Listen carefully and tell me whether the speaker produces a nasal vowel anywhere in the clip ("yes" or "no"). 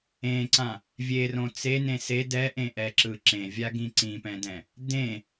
yes